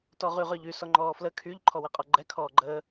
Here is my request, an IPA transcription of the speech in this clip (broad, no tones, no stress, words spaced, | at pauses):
tɔʁyʁœʎy sɔŋ͡ǃɔːflə kʰyʎ ǃʰɔwɛqʼɔɡ͡ǃɛ kʰɔːɡ͡ǃəː